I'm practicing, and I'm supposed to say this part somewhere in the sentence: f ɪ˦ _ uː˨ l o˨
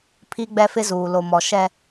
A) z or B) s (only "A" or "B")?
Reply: A